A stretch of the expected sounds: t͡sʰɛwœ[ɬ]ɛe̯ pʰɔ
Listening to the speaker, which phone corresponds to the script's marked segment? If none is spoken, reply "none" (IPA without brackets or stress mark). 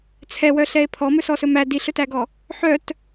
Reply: ɬ